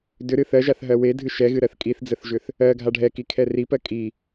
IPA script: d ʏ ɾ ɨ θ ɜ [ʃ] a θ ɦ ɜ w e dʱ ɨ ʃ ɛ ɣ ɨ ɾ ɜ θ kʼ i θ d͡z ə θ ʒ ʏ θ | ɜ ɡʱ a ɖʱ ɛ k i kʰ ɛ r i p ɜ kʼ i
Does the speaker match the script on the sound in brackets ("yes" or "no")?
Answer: no